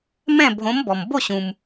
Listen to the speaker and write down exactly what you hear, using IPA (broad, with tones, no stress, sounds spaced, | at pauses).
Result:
m ɛ̃˥˨ bʱ õ˨˥ m b ɔ˩ m b o˥˨ ɕ ũ˩ m